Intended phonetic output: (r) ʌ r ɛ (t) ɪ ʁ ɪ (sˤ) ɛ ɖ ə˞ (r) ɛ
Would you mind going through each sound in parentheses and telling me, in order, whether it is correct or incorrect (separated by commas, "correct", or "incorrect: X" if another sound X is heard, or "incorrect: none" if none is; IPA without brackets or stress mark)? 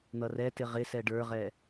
incorrect: n̪, correct, incorrect: s, incorrect: ʁ